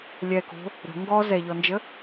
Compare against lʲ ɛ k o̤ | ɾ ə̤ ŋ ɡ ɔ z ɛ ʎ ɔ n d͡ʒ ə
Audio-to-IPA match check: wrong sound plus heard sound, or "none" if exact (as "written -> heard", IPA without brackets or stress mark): none